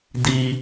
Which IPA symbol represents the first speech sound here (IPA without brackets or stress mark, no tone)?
d